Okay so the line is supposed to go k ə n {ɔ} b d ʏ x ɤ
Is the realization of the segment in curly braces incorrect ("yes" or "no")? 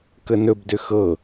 yes